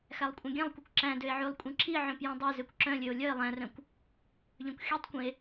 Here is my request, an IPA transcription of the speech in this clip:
x æ lˠ kʷʼ œ̃ ɡʲ ɛ̃ lˠ kʷ ɛ kʷ ǁ æ̃ d ø e̯ ʕ ʉ lˠ kʷʼ ĩ ǁ i ʕ œ̃ p j ɛ̃ dˤ ɛ z ø kʷ ǁ œ̃ lʲ ø o̯ lʲ œ e̯ lˠ æ̃ r œ̃ kʷ | ʎ œ̃ kʷ xʲ ɛ tˤ kʷ ĩ e̯

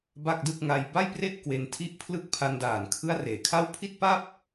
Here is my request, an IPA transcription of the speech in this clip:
b a˥˩ k̚ d ɯ˥˩ k̚ ŋ a˧ j b a˥˩ j p r e˥˩ ʔ k w e˧ n tʰ i˦˥ ʔ pʰ l ɯ˥˩ k̚ pʰ a˧ n d aː˨˩ n kʰ ɯ˦˥ a̯ r eː˩˦ kʰ a˥˩ w pʰ i˥˩ t̚ p a˥˩ p̚

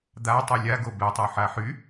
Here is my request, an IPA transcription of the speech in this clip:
d̪ a tˤ ɯ lʲ a ɡ o b ɛ tˤ o ħ a ħ y

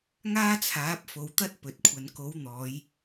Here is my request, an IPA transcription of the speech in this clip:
ŋ aː˥ t͡sʰ aː˨˥ p̚ f o˨˧ w t̪ ɐ˥ t̚ p ɵ˨ t̚ kʷʰ ɐ˨˧ n k o˨˥ w n̪ ɔː˨˧ j

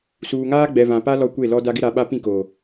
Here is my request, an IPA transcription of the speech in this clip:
s uː˨ ŋ aː˦ ɡ͡b ɛ˨ v ã˨ p a˦ l ɔ˦ kʷ e˦˨ l ɔ˦ d a˦ ɡ ɪ˦ ɾ a˨˦ ɓ a˦ p ĩ˦˨ k oː˨

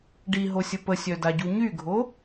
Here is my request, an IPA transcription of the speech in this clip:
ɖ i ɦ o sʲ ə p ə sʲ œ d a ɟ u ɲ y ɡʱ o

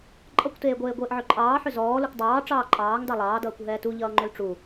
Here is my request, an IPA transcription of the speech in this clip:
ǃʼ ʌ kʷ t eː ɡʷ eː ɡʷ eː ʔ ʕ ʏ ǃʼ ɑː ħ ʏ z ɔː l u kʷ dˤ ɑː ʈ͡ʂ ɑː ǃʼ ɑː ŋ d ɑ lˠ ɑː d ʌː kʷ ɦ ɛː t u ʎ ʌː ŋ͡ǃ ʏ l ʈ͡ʂ u

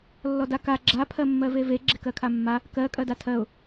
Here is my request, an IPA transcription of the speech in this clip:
lː ɔ d a k a ɡ͡ǁ a pʰ ɜ mː ɜ v e v e ɡ͡ǁ e k ɜ kʰ a mː a | k ɜ kʼ ɜ d a tʰ ɜ ʊ̯

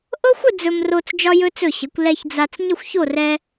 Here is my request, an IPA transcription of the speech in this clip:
ʔ ɤ˥ xʷ ə˥˧ d͡z ɵ˧ m r o˧ t͡s d͡ʒ ɒ˧ j ɵ˧ t͡s ɵ˧˩ ɕ ə˩˧ kʷ l ɛ˧ ç d͡z a˧ t͡s ɲ ə˥˧ xʷ ç o˥˧ r ɛ˧

